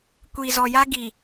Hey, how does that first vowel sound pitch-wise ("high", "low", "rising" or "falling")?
low